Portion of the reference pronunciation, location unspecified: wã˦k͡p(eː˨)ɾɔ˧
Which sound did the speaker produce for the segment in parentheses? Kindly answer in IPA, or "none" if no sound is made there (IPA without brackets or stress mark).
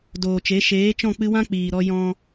iː˨